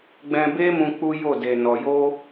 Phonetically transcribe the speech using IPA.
ɡ͡b ɛ̃˧ b e˦ m ũ˧ k͡p u˦ j o˦˨ d e˨ n ɔ˨ j o˧

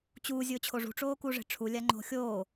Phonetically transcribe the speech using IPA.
t͡ɕ uː zʲ ʊː t͡ɕʰ o ʐ ṳ ʈ͡ʂ oː k u ʐ e̤ ʈ͡ʂʰ u lʲ a ŋ͡ǃ o̤ xʲ oː

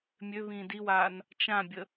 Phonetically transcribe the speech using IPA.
mʲ ø β ĩː d i w aː n | t͡ʃ ã bʲ ə

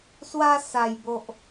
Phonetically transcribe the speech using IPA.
s w a˧ s a˨˩ j b o˨ ʔ

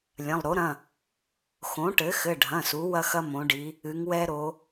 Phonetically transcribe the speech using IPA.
lʲ ɐ̃˩˧˩ lˠ ɾ o˩˥ ɾ ɐ̃˩˧˩ | x õ˩˥ ʈ ɘ˩˥ x ɘ˩˧˩ ɖʱ ɐ̃˩˧˩ s u˩˧ w ɐ˦ x ɐ˦ m õ˩˧ ɖ i˩˧ | ɨ˩˧ ŋ w ɛ˦ ɾ o˩˧

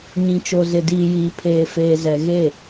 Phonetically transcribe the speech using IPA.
ɲ ĩ˨ t͡ʃ o˨ z ɪ˨ d iː˨ j iː˨ pʰ eː˨ f eː˨ z ɛ˨ ɣ e˦˨

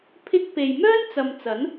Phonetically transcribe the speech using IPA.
pʰ ɪ˥ k̚ p e˨ j m œː˥ n t͡s ɐ˨ m t͡s ɐ˨˥ n

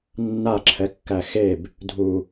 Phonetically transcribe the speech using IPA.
nː a ǁʰ ɛ kː æ x e b | dʱ u

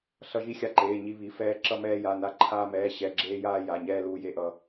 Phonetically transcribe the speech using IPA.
ɬ ʌ˧ ʒ i˧ xʲ a˧ ǃ eː˩˧˩ ɲ i˧ β i˩˧˩ f ɛː˧ ǁ ʌ˧ m ɛː˧ j a˩˧˩ n a˧ ǃʰ aː˧ m ɛː˩˧˩ ɕ ɛ˩˧˩ ɡ͡ǁ eː˧ j aː˧ j a˩˧˩ ɲ ɛː˧ l uː˧ j e˧ ʔ ʌ˧

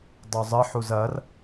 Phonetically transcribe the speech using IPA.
dˤ u zˤ ɘ ħ u z ɐ r

